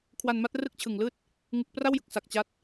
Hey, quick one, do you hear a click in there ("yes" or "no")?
no